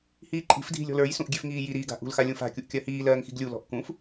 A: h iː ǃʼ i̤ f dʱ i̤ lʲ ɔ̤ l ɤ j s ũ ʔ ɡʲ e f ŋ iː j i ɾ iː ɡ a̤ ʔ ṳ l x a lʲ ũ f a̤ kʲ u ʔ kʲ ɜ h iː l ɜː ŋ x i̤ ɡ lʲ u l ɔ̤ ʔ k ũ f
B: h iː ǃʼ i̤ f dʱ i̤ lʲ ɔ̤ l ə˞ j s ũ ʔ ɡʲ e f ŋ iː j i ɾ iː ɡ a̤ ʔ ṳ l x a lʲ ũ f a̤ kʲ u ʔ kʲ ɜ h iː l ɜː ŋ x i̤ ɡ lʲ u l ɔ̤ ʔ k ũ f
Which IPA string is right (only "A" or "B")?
B